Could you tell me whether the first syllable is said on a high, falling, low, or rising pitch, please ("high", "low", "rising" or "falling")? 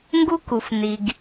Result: high